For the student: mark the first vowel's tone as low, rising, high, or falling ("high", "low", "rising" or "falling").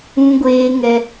high